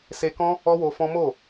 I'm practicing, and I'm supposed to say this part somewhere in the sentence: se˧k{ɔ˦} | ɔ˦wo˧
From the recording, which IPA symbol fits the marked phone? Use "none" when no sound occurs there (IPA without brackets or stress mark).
ɔ̃˦